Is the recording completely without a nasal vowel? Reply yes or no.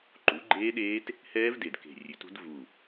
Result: yes